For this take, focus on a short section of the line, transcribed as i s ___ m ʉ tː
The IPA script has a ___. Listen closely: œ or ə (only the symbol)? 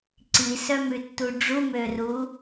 œ